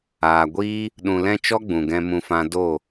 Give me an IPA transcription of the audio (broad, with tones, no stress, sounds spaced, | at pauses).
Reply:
aː˨ ɡʷ iː˦ | ɗ ũ˨ l ɛ̃˧ t͡ʃ ɔ˦ ɡ͡b ũ˨ ɡ ɛ̃˧ m ũ˧ f ã˧ d o˦˨